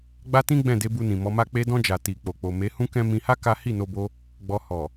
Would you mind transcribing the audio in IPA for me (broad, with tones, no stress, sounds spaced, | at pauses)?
ɡ͡b a˦ t ĩ˦ ɡ͡b ɛ̃˦˨ d e˧ b u˧ n ĩ˨ m ɔ˨˦ m a˦ k͡p e˧ d ɔ̃˧ d͡ʒ a˨ t i˨ k͡p o˨ k͡p o˨ m e˨˦ h ũ˦ k ɛ̃˦ m ĩ˧ h a˦ k a˦ h i˦˨ n o˧ b o˧ | ɡ͡b ɔ˧ h ɔ˨